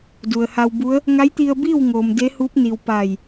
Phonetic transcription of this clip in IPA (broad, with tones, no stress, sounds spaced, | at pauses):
d u˩ ə̯ h a˧ w b u˧˥ ə̯ | ŋ a˧˥ j t̪ i˧ ə̯ b iː˥˨ w ŋ oː˩ m d e˧˥ h uː˧˥ p̚ n i˩ w p a˧˩ j